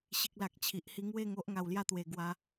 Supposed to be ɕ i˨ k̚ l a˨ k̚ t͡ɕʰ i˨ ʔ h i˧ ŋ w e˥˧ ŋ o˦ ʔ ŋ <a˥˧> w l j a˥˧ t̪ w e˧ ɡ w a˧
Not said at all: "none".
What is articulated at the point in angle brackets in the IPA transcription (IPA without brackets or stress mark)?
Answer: a˧